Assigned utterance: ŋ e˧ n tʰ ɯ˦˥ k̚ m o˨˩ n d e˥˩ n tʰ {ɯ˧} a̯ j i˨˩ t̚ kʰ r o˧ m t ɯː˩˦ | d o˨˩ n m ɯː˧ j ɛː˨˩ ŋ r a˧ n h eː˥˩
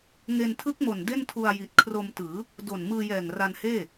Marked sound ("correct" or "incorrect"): incorrect